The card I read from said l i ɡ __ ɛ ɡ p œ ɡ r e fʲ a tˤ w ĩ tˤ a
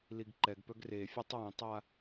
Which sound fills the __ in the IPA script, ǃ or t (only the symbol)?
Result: ǃ